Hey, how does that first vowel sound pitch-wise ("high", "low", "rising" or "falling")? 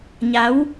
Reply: rising